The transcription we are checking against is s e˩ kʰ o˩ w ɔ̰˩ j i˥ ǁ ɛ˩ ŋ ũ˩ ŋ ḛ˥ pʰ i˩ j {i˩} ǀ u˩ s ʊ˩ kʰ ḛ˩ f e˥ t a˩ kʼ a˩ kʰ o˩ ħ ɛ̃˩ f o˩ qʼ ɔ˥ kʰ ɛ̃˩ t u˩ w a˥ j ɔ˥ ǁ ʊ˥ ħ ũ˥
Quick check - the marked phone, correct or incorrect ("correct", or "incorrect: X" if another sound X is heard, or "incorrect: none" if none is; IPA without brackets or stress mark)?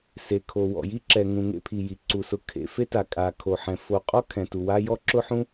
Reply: correct